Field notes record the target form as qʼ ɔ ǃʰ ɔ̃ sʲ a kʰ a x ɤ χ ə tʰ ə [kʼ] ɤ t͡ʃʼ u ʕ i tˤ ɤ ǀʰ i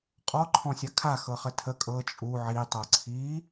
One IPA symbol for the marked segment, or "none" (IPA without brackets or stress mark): kʼ